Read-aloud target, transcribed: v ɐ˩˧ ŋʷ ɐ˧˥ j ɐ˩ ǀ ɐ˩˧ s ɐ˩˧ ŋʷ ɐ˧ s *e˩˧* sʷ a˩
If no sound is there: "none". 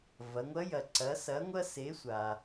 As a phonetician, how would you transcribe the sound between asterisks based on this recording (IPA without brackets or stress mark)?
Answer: e˩˧